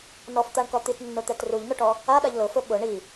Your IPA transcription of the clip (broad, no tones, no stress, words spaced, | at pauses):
nɔft̪aɳkɔ t̪itnːʊt̪ɛt ruʎnʊʈɔ | aɗaʎ lʊfʊ ɓʊ ɳi